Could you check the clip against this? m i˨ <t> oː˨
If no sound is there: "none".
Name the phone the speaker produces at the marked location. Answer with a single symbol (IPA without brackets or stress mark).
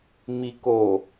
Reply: k